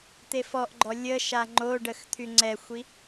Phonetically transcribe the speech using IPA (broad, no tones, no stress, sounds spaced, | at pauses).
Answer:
t̪ e f ɔ ʔ ɡ͡ǃ ɔ lʲ ə ʃ a ŋ͡ǃ o ɖ ə x t̪ʰ y ŋ͡ǀ ɛ xʷ i